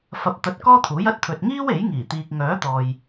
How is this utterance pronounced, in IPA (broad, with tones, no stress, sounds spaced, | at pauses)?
f ɐ˧ p̚ t̪ ɐ˧ t̚ k ɔː˥ t̪ʰ uː˨˥ j ɐ˥ t̚ t̪ʰ ɵ˧ t̚ ŋ iː˥ w e˨˥ j ŋ iː˨˩ t̪ iː˨ k̚ ŋ œː˨˥ t̪ ɔː˨ j